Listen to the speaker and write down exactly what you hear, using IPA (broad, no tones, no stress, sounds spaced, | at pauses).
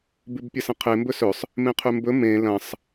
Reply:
b ʉ b pʲ ɐ s ɐ̃ qʰ e m b ɵ s ɵ sˤ | m ẽ qʰ ʉ m b ɵ m ẽ l ɐ̃ sˤ